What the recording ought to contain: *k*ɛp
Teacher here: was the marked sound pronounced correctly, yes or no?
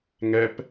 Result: no